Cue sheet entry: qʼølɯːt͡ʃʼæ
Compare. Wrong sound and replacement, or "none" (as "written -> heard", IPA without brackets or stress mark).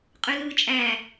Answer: none